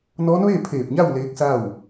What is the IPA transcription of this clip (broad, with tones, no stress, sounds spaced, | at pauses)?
n ɔː˧˥ n ʋ eː˥˨ pʰ eː˧˩ p̚ ɲ a˥˨ w l eː˧˥ k̚ s a˥˨ w